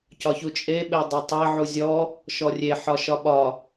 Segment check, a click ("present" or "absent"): absent